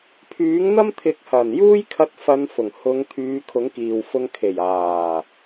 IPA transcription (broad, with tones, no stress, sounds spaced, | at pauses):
pʰ yː˨˥ ŋ n̪ ɐ˥ m t̪ʰ ɪ˨˥ k̚ h ɐ˨˩ n j uː˥ j kʰ ɐ˧ t̚ f ɐ˨˧ n f ʊ˨˩ ŋ h ʊ˨˧ ŋ t̪ʰ yː˨˧ kʰ ʊ˨˥ ŋ k iː˨ w f ʊ˧ ŋ kʰ e˨˩ j aː˨˩